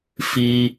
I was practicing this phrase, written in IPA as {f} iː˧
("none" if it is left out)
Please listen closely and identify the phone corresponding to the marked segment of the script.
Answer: f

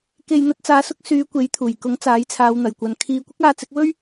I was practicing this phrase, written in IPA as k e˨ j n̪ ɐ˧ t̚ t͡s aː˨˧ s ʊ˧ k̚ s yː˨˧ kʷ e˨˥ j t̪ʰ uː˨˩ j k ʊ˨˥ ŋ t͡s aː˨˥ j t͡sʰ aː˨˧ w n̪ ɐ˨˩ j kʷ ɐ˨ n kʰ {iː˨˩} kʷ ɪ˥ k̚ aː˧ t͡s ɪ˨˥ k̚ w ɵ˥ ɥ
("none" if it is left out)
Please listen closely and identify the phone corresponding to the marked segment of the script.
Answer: iː˧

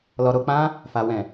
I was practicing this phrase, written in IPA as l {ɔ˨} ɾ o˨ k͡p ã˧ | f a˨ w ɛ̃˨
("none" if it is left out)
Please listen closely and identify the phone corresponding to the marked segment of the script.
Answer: ɔ˨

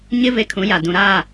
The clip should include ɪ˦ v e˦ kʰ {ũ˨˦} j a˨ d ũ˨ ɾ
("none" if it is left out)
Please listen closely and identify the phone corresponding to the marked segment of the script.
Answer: ũ˨˦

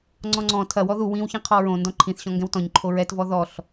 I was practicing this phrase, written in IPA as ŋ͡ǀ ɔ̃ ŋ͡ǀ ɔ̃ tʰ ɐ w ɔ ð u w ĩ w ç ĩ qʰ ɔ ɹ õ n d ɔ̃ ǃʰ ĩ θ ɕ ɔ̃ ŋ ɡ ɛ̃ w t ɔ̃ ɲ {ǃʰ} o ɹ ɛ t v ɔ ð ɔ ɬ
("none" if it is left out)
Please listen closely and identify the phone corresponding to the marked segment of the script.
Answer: ǃʰ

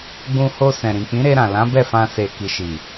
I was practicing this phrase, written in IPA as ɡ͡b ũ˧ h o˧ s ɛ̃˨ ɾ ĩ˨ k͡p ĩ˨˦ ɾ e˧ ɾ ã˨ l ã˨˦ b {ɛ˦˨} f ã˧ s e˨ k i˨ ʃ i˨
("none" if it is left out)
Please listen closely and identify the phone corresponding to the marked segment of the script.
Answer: ɛ˦˨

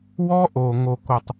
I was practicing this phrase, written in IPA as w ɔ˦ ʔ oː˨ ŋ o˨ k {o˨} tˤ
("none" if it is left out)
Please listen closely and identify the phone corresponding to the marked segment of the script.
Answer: o˨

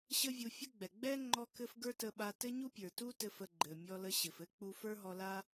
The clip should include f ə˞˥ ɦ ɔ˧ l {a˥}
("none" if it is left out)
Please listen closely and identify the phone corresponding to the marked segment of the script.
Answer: a˥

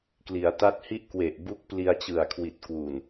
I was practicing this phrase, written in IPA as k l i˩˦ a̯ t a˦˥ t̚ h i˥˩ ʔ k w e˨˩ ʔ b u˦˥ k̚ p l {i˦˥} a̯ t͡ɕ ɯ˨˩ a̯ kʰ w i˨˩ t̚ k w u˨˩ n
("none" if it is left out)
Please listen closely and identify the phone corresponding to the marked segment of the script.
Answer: i˧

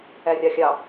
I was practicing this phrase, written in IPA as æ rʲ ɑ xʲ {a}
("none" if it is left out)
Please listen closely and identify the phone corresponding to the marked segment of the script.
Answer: ɑ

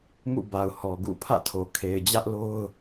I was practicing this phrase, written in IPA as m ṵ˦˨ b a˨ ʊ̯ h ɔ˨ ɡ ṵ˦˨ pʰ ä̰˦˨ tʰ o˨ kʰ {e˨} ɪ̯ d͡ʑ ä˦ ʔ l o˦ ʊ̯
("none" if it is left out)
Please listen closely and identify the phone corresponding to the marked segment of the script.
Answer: e˨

